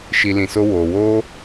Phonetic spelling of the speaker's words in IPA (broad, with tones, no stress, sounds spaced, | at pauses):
ʃ i˨ l ĩ˨ s o˧ w oː˨ w oː˦